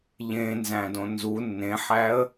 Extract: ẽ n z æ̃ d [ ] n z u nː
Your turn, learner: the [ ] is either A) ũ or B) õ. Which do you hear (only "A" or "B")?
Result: B